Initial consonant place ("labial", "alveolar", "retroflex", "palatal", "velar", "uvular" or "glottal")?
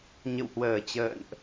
palatal